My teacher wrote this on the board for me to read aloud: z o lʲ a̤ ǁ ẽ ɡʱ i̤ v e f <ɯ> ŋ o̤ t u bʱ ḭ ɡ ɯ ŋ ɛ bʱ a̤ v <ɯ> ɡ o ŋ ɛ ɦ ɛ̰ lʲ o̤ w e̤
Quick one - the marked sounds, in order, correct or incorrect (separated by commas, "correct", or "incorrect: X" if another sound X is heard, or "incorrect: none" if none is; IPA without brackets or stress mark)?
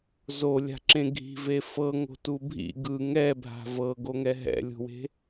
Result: incorrect: ɤ, incorrect: ɤ